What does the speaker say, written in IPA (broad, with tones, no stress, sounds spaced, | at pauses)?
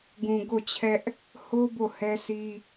ɡ ũ˨ ɡ o˦˨ t͡ɕʰ ɛ˦ ʔ | h o˦ b o˦˨ h ɛ˦ s i˦